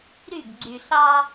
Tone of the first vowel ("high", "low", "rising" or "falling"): falling